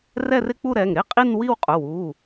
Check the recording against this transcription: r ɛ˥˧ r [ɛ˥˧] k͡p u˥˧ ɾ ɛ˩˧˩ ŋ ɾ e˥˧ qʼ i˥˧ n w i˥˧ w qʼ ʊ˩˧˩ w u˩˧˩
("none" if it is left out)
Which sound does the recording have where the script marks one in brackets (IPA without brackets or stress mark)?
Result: ɪ˥˧